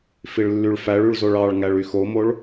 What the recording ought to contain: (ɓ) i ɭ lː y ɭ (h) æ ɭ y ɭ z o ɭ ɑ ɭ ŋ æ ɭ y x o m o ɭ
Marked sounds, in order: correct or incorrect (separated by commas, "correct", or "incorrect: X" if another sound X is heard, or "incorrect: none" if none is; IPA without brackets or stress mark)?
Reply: incorrect: f, incorrect: f